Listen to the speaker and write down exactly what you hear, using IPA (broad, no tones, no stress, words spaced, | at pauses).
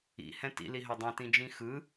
ḭ hɛ̃tḭ liɦœdˤɛ̃ tĩd͡ʒĩxɯ